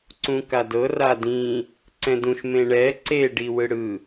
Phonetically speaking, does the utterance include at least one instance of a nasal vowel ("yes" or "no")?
yes